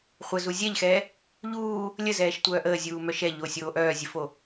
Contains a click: no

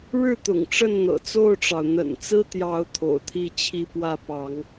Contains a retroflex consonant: yes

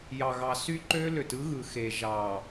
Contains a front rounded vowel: yes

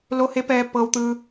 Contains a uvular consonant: no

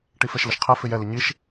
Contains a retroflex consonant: yes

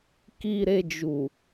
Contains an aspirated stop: no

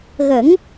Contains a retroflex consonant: no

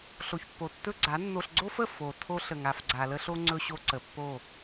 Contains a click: yes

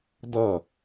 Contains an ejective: no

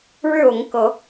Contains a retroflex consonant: yes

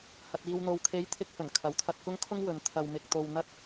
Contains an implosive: no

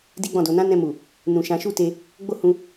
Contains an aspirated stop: no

